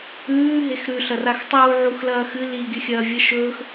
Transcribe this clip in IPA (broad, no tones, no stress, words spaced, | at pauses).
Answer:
ʉː ɦexɾʉ ɬɐraxtˤuː ʕuxlɐːxɨ li ɡʲɵxʲɐːvʲɐʃɵːx